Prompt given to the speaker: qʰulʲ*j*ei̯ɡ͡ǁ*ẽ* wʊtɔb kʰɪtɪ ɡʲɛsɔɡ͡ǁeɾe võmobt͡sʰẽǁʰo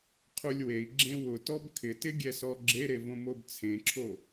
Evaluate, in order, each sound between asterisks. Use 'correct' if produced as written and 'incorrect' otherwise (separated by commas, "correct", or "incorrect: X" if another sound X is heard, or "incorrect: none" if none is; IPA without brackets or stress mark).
incorrect: w, correct